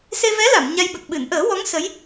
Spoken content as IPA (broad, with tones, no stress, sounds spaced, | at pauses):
s e˧ v ɛ˧˥ l a˨˩˨ m ɲ a˧ j ɓ ə˨˩ k̚ ɓ ɨ˨˩˨ n ʔ əː˨˩˦ w ɔ˧˥ ŋ s ə˧˥ j